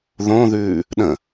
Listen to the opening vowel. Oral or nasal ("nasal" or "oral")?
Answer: nasal